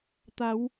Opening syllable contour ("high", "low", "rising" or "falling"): rising